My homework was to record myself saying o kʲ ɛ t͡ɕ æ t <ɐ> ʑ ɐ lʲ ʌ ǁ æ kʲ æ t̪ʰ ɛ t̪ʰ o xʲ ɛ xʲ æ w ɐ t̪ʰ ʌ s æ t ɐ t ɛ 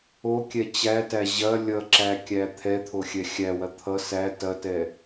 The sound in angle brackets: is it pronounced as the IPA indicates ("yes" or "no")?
no